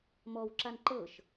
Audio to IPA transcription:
m ɔ w ǁ a n ǃ ɤ ʃ

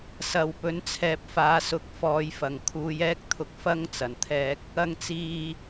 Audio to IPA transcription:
s ɐ˨ w p ɵ˨˥ n t͡sʰ ɛː˨ p̚ f aː˨˧ s ʊ˨˥ k̚ f ɔː˨˧ j f ɐ˨˩ ŋ kʰ uː˨˧ j ɛː˥ k̚ t̪ʰ ʊ˧ k̚ f ɐ˥ ŋ t͡s ɐ˨˩ n t̪ʰ ɛː˧ k̚ | ɐ˨ ŋ t͡s iː˨

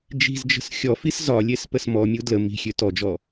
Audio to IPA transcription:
d͡ʒ i̤ z d͡ʒ ə̤ s xʲ ɔ f i s z ɒ lʲ e s p ə s m ɔ mʲ u d l ə m i̤ xʲ ø t ɔ d͡ʒ ɔ

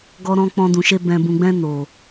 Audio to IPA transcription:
ɡ ɔ˧ ɾ ɔ̃˧ k͡p ɔ̃˧ d ũ˨ ʃ e˧ b ɛ̃˨ b ũ˨ ɡ͡b ɛ̃˧ n o˨

